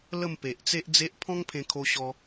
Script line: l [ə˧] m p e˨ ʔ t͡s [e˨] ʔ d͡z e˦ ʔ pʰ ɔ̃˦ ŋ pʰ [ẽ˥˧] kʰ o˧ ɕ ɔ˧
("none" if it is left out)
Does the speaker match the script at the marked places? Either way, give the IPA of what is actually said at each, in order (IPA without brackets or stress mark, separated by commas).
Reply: ə˥˧, e˦, ẽ˧